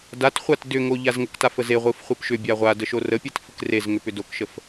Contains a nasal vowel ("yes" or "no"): no